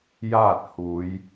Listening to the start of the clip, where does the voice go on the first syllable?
falling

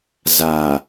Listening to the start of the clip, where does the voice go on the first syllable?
low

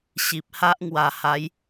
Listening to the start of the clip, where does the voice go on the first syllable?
low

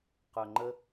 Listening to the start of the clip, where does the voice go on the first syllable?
low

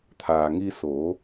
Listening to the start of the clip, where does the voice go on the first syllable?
low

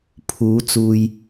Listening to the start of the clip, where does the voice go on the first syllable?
rising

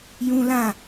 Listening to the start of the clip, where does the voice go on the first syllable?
high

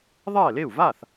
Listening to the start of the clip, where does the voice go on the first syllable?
falling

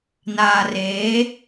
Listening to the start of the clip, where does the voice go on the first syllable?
low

